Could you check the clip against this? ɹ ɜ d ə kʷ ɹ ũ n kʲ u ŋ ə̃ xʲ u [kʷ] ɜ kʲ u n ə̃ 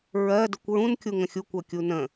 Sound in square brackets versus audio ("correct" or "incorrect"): correct